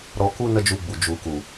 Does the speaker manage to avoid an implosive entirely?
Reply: yes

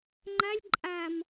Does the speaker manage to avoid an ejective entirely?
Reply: no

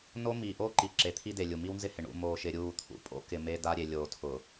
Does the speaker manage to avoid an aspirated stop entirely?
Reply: no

